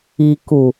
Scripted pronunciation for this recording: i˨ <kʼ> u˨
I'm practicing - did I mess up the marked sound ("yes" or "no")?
yes